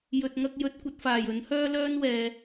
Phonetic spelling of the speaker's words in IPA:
j ɵ˨ t̚ ŋ ɐ˧ k̚ j ɵ˨˥ t̚ kʷ ɐ˨˥ t̚ f aː˨˩ j ɵ˨˥ n h œː˥ l œː˥ n w ɛː˨

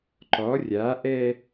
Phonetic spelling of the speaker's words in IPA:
ǃ ɔ rʲ a ʔ ɛ

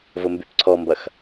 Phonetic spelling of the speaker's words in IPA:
v ʊ m b y p ǀʰ ɔ m b ɐ x

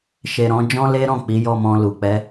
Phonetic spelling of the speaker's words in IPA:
ʃ e˨ ɾ ɔ̃˧ d͡ʒ ɔ̃˦ l e˦ ɾ ɔ̃˦˨ k͡p i˨˦ j ɔ˦˨ m ɔ̃˧ l u˨ k͡p ɛ˨˦

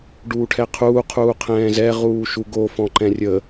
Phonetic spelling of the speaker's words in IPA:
ɖ uː ʈʰ ɛ qʰ uː qʰ uː qʰ ɛ̃ː z ɛ ʁ uː ʃ u ɡ o f ɔ̃ ǃ ɛ̃ rʲ ə

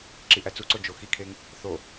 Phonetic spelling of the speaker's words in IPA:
ǁ i ʔ æ t͡s u ǀ o d͡ʒ o x i kʰ e ŋ | θ o

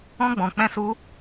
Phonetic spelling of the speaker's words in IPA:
ɔ̃˦ ɡ͡b ɔ̃˧ k͡p ɛ̃˦ s u˦

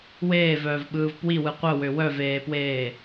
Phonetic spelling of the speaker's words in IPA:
w eː v œː v ɓ ɯː v p w i w ɯ qʷ œ w ø w œ v eː p w eː

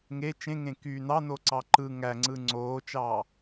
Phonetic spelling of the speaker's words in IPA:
ŋ e t͡ʃ ẽ ŋ ẽ k y n ɑ n o ǀ ɑ ǃ ɯ ŋ æ ŋ͡ǀ ɯ ŋ͡ǀ oː t͡ʃ ɑː

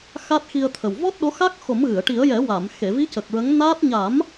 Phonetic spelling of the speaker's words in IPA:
x a˦˥ t̚ x i˧ ə̯ t̪ʰ ə˨˩ w v ɔ˦˥ t̚ ɗ o˧˥ x a˦˥ k̚ x o˨˩˦ m ɣ ɨ˨˩˨ ə̯ ʈ i˨˩˦ ə̯ j ɛ˨˩˦ w a˨˩˨ m x e˨˩˨ v i˧˥ c ə˨˩ k̚ ɹ ə˧˥ ŋ n aː˦˥ t̚ ɲ a˨˩˦ m

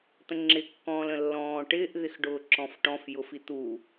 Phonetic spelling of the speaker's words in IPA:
t̪ ə̃ ŋ͡ǁ ɪ kː ɔ̃ː l ə̃ lː ɔ̃ː ʈ ɪː ʔ ð ɪ x ɖ ʊː ǁ ɔ̃ f ʈ ɔ̃ f j ʊ f i t̪ u

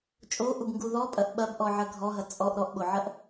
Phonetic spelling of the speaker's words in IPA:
t͡ʃʼ o ʔ u b ŋ ɡ u ð ɔ pʼ ɐ ʔ ɓ ɐ b ʔ ɔ ʕ ɐ ɡʱ ɔ ɦ ɐ t͡sʼ ɔ ʔ ɾ ɔ ʔ ɓ o ʕ ɐ ʔ

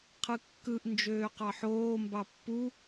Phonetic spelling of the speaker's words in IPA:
qʰ ɯ kː ɯ ʔ n d͡ʒ øː q ɑ ħ oː m b ɑ pː u

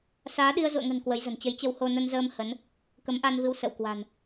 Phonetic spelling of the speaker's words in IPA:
s aː˨˦ ɗ i˧ ə̯ z ṵ˧˨ ə̯ ŋ ə̤˨˩ n k w ə˨˦ j z ə̤˨˩ n t͡ɕ ə˨˦ j t͡ɕ ə˧ w h o˧ n ə˧ n z əː˧ m h ə˨˦ n | k ə˨˦ m ʔ a˧ n v ɨ˨˦ w s ə̰˧˨ w k w a̤˨˩ n

